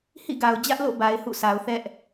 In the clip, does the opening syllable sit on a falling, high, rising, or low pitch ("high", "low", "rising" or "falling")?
falling